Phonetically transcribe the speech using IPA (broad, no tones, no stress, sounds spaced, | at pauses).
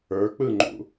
ə˞ k͡p ɯ ŋ͡ǃ ṵ